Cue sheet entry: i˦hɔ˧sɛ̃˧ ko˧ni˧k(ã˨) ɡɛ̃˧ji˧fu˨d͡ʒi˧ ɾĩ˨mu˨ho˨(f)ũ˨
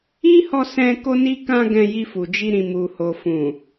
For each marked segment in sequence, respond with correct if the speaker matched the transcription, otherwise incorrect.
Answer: incorrect, correct

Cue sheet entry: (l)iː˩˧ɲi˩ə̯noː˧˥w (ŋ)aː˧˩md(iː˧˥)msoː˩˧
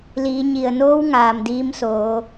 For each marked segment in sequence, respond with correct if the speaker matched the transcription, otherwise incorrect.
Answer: correct, correct, correct

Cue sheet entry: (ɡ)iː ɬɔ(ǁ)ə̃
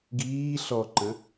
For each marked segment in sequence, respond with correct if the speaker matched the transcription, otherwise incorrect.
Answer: correct, incorrect

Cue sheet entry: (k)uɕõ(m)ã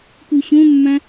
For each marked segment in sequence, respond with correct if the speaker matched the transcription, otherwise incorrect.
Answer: correct, incorrect

